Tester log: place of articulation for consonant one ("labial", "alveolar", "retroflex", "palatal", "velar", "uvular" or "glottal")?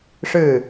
retroflex